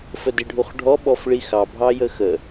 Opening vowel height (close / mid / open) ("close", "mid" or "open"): mid